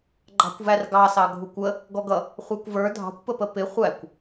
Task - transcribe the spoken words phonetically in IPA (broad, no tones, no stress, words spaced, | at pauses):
ɡ͡ǃɑ̤kʷværɡɑsɑ ɡʱukʷə | ɡɔɡʌ | χʷækʷvə˞ dʱɑ̤kʷpəpə pɪ χʷækʷ